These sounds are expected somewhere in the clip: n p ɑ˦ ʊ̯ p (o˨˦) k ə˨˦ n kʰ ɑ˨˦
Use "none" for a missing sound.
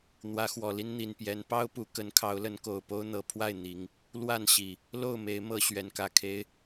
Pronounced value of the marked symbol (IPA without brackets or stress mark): u˨˦